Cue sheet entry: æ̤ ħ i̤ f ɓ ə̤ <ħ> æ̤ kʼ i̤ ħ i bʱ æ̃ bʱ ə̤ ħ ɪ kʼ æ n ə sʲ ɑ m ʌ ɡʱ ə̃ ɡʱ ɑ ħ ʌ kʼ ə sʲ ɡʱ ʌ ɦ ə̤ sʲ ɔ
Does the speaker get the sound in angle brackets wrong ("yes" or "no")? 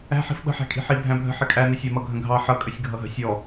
no